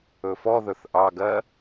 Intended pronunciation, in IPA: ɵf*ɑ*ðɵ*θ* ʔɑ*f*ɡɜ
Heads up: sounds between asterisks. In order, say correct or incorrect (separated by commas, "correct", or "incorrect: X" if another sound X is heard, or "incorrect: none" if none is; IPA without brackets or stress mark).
incorrect: ɔ, correct, incorrect: none